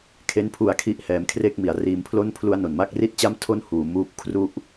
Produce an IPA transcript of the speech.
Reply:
kʰe˦˥n pʰu˧a̯ kʰi˥˩ʔhɛː˧mkʰre˥˩k̚mi˩˦a̯ riː˧mpʰlo˥˩npʰlu˦˥a̯ no˨˩nma˥˩k̚ri˥˩t̚t͡ɕa˥˩m tʰo˥˩n huː˩˦ muː˦˥p̚ kʰru˥˩ʔ

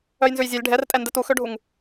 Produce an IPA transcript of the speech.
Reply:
œjnzʉjzʲœlʲ ɖʱɛrtʼɛndɛt uxøɖʱuŋ

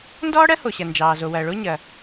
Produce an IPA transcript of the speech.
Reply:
ndɔː˥ɽɜ˥ho˩ ɕɐ˩ nd͡ʒɑː˩zo˩wɐː˩ ɭo˥ɲɐ˩

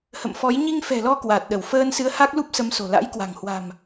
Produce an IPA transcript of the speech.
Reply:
hə̰˧˨mfɔ˨˦j ɲi˧ŋfɛ̤˨˩lɔ˧ kwa˨˩t̚ɗə˧˩w fəː˧nsɨ˨˦ə̯ ha˦˥k̚lu˦˥p̚sə˨˦mso̤˨˩ la̰˧˥jkwa̤˨˩ŋ hwa̤˨˩m

